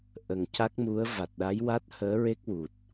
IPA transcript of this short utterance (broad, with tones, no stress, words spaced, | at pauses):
ʔə˨˩ŋca˦˥k̚mu˧˥ə̯ va˨˩t̚ɗa˧˥jwa˦˥t̚ həː˧˥ɹe˦˥k̚wu˨˩t̚